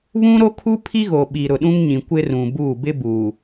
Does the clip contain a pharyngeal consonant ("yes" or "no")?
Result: no